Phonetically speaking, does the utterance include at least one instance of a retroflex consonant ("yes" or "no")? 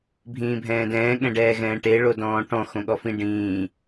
yes